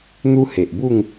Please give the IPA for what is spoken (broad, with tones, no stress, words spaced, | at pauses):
n̪u˦he˨ʔbu˥˧ŋ